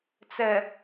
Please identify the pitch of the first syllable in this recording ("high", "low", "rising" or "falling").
low